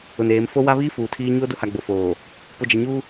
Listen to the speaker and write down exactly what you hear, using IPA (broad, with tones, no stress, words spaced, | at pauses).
ʊ˨neː˨˦m fo˦wa˦ βiː˦ fuː˨tʰiː˦ ɲoː˦dʊ˦ha˨ɡ͡bo˨ foː˨ | pʊ˨d͡ʒa˨ɲuː˦